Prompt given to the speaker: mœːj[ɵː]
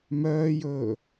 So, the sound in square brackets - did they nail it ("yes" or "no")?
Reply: yes